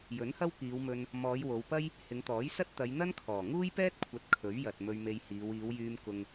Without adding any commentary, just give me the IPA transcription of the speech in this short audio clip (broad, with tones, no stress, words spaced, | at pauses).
jɵ˨˥nhɐ˥wkiː˨˧wmɵ˧n | mɔː˨˧jwo˨˧wpɐ˥j | hɪ˨˧ŋt̪ɔː˨˥jsɐ˥t̚ t̪ɐ˨˧jn̪ɐ˥nkʰɔː˨˩ ŋuː˥jpɛː˥t̚kʷʰɐ˨˥t̚ kʰɵ˨˥ɥjɐ˨t̚ mɵ˧ɥme˧jhiː˨˧w iː˨˧wjyː˧m kʊ˧ŋ